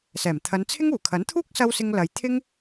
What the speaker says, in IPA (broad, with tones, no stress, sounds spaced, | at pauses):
s ɛː˨˩ m t̪ʰ ɐ˨˧ n t͡sʰ ɪ˥ ŋ uː˨˩ kʰ ɐ˨˥ n t̪ʰ uː˥ k̚ s ɐ˥ w s ɪ˥ ŋ l ɐ˨˧ j t̪ʰ ɪ˥ ŋ